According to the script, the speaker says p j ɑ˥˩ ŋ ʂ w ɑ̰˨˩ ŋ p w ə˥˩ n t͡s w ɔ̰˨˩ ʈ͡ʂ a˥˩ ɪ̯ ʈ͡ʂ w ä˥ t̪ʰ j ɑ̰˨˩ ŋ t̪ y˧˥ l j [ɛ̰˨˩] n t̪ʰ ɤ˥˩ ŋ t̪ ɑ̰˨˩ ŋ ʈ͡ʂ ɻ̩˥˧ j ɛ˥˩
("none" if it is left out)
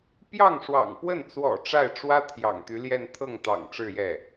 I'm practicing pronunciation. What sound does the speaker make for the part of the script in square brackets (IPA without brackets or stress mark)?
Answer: ɛ˥˧